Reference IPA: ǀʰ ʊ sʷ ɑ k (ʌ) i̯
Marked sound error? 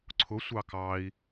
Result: yes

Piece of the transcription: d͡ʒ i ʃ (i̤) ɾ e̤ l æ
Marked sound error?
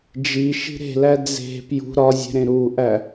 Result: no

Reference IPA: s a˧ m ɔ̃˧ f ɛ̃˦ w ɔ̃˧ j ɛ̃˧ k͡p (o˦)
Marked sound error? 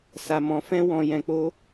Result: no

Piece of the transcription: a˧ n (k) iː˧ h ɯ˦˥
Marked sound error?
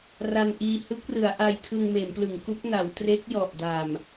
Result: yes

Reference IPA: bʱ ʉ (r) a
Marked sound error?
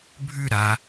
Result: yes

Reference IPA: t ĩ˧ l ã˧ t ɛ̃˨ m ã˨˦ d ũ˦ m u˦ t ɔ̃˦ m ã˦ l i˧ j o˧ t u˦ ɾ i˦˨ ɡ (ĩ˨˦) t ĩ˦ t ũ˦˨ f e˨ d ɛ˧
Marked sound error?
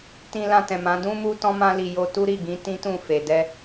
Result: no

